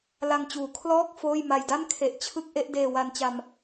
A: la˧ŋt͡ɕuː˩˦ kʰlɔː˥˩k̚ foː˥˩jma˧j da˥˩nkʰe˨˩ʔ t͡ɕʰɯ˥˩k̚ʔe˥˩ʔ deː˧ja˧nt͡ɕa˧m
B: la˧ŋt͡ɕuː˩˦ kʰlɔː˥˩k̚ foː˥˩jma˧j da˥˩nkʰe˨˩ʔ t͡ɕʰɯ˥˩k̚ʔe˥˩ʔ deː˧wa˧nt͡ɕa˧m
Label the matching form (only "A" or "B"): B